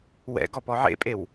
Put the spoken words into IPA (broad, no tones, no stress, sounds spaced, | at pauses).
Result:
w ɛ̰ ɡ ɔ p ɔ ʕ ḛ pʼ e w